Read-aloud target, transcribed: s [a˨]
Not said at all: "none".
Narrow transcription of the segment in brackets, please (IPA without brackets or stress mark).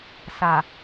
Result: a˨